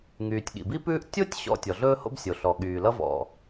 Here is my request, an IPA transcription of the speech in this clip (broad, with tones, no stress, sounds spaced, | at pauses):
ŋ yː˩ tʲ ɠ ḭ˩ b i˥ p ʉː˥ ʔ tʲ o˥ tʲ ɕ ɔ̰˥ tʲ ɔ˩ ɮ ɵː˥ h o̰˥ b sʲ o˩ ɬ ɔ˩ ɠ yː˩ l ʌ˥ v ɔ̰˩